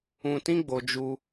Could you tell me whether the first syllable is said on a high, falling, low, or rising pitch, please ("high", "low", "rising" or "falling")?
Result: low